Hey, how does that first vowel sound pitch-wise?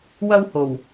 high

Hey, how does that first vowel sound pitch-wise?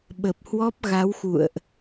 low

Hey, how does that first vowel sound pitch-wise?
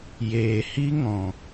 low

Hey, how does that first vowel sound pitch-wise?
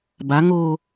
rising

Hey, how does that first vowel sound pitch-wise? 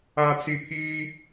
low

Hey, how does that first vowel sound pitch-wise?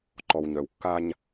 low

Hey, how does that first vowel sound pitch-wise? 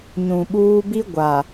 low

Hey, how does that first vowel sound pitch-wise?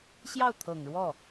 falling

